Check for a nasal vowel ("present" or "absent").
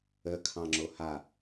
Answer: present